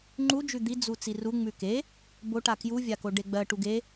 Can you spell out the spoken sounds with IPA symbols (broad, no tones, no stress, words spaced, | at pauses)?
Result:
ŋ͡ǃud͡ʒʉ d̪id͡zu t͡siru ŋ͡mʉke | boʈa kjuvʲako ɖeɡ͡bɜ ʈuɡe